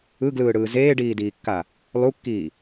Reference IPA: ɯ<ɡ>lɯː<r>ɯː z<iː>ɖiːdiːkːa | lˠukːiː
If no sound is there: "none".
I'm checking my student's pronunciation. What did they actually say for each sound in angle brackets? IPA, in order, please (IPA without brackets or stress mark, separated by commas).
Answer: ɡ, ɽ, eː